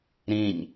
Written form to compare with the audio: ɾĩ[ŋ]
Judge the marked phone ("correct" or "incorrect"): incorrect